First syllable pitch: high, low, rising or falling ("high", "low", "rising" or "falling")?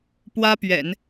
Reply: high